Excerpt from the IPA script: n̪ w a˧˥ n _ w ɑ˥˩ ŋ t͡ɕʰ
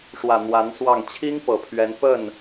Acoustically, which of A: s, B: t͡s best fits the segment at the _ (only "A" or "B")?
A